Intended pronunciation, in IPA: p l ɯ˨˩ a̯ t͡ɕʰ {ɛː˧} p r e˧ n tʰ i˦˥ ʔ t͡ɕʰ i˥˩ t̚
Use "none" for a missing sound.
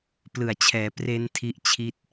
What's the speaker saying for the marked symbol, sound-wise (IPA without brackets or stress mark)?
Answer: ɛː˩˦